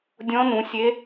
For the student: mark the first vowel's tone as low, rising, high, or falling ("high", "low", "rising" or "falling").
rising